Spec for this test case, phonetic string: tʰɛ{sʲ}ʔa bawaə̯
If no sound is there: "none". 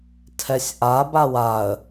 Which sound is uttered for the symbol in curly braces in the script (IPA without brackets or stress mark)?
sʲ